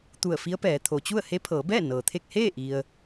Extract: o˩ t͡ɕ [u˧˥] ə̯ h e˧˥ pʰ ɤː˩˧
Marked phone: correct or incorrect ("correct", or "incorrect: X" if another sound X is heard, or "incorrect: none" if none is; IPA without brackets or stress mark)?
incorrect: u˥˨